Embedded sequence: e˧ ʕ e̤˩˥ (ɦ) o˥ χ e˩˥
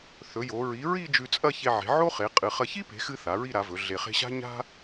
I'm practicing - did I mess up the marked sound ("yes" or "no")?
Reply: yes